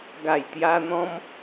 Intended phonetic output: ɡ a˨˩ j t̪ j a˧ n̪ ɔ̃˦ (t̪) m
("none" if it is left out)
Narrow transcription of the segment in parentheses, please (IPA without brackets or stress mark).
none